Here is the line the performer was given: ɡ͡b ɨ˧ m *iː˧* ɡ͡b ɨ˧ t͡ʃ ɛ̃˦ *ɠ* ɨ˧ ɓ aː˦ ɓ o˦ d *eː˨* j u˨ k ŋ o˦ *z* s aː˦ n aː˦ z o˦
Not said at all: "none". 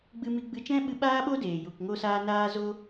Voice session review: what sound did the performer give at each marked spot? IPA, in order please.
i˧, ɓ, eː˨, none

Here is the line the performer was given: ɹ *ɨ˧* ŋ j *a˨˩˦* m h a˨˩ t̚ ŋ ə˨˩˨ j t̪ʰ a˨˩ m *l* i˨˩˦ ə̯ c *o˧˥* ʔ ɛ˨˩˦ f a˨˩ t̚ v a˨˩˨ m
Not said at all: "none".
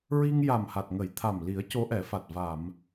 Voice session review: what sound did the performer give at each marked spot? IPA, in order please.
i˧, a˨˩, l, o˧˥

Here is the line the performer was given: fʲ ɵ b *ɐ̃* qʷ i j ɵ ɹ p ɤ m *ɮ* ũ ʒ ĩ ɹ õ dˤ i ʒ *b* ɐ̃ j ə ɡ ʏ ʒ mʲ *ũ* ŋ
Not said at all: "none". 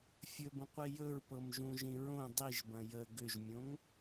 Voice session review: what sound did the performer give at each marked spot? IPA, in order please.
ə̃, ʒ, b, õ

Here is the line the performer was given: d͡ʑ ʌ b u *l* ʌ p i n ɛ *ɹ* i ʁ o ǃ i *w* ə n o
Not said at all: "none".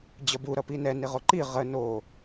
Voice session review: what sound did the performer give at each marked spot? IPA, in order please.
ɾ, n, ʁ

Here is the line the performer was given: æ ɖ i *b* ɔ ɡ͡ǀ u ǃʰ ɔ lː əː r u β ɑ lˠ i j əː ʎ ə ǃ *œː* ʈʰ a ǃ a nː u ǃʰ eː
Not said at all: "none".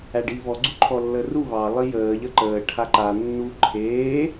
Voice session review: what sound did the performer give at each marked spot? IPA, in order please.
β, əː

